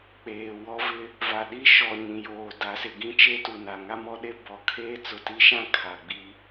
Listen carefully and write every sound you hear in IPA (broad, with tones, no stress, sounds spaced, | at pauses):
k͡p eː˨ w ɔ˦ v ɪ˦ | v a˨ ɗ i˦ ʃ ɔ˨ ɲ ĩ˨ j oː˨ d a˨˦ s ɪ˨ ɡ ĩ˦ t͡ʃ e˦ t u˨ n a˨ ŋ a˦ m ɔ˦ ɗ e˦ b ɔ˨ kʰ eː˦ t͡s ʊ˨ t i˦ ʃ ã˦ kʰ a˨ ɡ͡b i˦